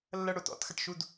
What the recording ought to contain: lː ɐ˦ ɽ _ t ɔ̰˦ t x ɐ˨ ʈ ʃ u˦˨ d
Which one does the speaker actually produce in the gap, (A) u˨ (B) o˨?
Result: B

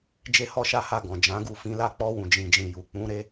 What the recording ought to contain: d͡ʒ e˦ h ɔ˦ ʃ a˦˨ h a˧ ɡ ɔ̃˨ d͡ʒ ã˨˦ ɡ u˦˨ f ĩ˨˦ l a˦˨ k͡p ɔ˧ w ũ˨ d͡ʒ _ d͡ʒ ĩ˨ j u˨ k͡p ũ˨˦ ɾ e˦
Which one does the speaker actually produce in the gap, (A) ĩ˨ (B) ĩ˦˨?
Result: A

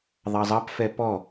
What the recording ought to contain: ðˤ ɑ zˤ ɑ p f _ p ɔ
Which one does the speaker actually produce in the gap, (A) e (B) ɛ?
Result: B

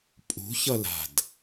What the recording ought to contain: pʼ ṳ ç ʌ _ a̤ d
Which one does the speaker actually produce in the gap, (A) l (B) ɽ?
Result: A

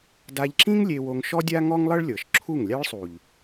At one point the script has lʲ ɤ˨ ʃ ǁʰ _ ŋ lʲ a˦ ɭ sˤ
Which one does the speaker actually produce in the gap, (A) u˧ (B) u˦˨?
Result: B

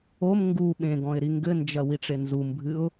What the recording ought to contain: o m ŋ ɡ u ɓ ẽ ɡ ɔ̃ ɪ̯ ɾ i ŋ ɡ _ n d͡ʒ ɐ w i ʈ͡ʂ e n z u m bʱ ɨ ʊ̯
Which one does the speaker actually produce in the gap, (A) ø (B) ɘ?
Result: B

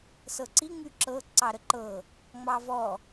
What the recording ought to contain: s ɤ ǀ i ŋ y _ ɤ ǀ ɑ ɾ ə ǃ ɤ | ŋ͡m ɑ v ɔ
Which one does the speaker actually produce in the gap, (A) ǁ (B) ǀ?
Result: A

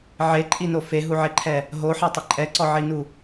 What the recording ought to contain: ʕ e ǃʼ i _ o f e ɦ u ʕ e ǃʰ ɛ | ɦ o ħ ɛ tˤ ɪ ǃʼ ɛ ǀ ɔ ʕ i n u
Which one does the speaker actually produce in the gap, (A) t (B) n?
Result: B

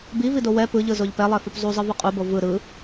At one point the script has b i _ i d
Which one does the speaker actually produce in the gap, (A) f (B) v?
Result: B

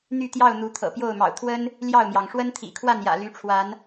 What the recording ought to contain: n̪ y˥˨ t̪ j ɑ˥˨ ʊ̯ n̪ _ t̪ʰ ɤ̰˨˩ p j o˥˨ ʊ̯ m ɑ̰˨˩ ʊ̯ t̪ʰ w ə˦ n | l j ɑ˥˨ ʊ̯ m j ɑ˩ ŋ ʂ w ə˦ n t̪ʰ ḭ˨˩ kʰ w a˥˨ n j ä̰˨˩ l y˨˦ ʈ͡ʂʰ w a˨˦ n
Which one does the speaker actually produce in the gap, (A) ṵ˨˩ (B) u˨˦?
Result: B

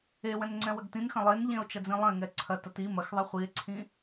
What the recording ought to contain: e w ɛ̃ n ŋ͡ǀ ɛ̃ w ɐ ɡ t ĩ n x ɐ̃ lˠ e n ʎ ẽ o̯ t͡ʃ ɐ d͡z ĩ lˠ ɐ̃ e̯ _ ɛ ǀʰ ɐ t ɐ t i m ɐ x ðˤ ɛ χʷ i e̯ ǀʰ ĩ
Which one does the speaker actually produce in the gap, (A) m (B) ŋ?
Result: B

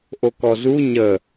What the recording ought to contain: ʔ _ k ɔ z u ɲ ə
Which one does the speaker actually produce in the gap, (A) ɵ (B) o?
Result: B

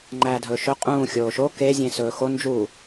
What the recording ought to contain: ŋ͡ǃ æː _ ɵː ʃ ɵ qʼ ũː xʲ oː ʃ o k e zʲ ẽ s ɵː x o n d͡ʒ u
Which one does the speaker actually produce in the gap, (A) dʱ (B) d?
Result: A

